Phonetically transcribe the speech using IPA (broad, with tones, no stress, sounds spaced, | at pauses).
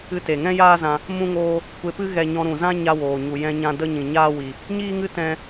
ɨ˦ t e˨ ŋ ɛ̃˦ j aː˦ z ã˧ | m ũ˦ ŋ oː˦ | kʷ e˧ p ɨ˦ ɣ ɛ˧ ɲ ɔ̃˧ ɾ ũ˨ z ã˦ ɲ a˧ w oː˨ ɲ u˨ j ɛ̃˧ ɲ ã˧ d ə˧ ɲ ĩ˨ ɲ aː˦ w i˧ | ɲ iː˦ ŋ ɨ˦ t ɛ̃˦